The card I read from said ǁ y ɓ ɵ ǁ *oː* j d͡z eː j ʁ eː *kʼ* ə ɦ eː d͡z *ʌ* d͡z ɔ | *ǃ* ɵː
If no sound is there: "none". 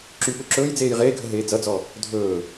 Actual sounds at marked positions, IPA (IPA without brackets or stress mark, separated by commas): ɵː, ɡʱ, ʌ, dʱ